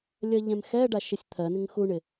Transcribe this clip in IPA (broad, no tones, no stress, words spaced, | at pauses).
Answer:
lʲɜʎɛ̃mxɛɖa ʃɪsʲt̪ʰɜnɪŋ xuɳɪ